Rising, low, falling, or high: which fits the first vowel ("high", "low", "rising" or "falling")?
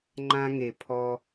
high